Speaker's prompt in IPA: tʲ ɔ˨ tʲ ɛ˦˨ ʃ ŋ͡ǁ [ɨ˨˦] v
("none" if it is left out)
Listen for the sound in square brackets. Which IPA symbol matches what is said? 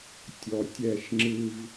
ɨ˦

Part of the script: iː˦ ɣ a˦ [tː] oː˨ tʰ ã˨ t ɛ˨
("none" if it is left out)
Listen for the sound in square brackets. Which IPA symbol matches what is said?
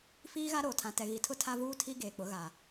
ɾ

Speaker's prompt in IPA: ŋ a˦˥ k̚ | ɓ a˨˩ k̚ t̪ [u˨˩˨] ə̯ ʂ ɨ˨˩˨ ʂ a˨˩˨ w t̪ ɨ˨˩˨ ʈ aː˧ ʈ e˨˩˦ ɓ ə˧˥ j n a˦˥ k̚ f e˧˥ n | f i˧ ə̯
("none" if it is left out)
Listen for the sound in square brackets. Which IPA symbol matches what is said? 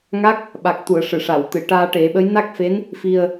u˨˩˨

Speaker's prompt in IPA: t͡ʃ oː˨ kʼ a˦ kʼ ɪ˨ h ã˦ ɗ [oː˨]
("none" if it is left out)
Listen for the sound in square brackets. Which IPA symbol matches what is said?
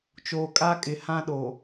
oː˨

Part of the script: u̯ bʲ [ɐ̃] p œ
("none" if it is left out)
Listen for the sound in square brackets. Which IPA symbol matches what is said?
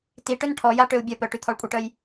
ɐ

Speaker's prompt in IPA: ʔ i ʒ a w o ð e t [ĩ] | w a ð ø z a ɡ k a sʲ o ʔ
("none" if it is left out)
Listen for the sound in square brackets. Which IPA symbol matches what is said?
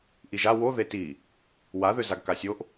i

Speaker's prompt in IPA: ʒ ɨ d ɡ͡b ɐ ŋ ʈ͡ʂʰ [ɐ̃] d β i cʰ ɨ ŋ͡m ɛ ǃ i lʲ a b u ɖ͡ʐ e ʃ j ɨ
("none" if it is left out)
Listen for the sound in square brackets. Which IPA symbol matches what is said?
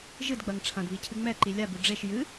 ɐ̃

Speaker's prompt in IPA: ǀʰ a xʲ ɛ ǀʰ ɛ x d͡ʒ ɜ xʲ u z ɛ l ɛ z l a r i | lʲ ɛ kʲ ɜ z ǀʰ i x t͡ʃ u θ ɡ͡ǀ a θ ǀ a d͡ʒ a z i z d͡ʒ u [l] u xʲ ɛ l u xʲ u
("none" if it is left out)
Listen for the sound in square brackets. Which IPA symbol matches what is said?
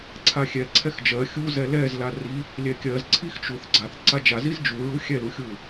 ɹ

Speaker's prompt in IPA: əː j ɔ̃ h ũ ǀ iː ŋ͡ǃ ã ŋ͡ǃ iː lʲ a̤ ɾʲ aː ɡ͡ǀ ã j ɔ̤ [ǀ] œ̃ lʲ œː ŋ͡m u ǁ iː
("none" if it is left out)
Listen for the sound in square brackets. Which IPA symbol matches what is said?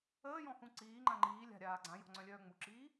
ŋ͡ǀ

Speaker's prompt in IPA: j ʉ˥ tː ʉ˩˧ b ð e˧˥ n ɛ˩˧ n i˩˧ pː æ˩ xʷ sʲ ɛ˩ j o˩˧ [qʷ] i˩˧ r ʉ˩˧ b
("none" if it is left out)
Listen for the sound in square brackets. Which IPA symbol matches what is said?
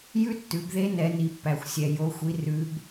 xʷ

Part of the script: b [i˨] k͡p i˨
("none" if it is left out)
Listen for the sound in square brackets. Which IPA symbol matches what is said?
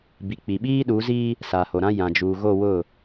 i˨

